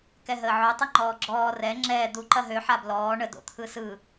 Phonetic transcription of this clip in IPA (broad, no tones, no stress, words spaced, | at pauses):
kɛɦəːʕo tˤɯŋ͡ǃɔːɡ͡ǁɔː rɛ ŋ͡ǁɛː d̪u ǃɐɦø ħablɔː ɳə do̰t̪ʰɯsɯ